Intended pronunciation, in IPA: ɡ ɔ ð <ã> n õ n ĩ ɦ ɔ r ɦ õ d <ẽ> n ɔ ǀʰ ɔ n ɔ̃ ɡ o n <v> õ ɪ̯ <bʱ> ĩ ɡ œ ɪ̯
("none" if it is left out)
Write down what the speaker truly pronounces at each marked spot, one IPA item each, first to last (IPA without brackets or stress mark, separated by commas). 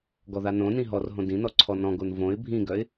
a, ĩ, v, bʱ